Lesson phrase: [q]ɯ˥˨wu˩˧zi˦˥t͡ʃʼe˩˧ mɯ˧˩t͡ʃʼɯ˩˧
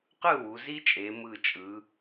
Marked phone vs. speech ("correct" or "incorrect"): correct